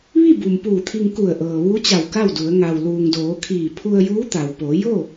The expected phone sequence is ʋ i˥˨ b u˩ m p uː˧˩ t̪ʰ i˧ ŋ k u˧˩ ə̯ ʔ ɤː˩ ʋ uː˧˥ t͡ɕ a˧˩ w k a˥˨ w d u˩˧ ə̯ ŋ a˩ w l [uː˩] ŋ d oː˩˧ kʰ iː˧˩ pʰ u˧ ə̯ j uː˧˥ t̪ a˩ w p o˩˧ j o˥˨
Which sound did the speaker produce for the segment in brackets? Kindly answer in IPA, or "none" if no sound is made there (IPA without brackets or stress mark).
uː˩